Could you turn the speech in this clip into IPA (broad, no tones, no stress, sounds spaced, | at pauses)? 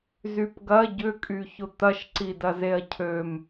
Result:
z y p ɡ ɐ ɟ ʏ kʼ y ç ʊ t̪ ɐ ʃ ǀ i d ɐ z e ɐ̯ cʰ ø m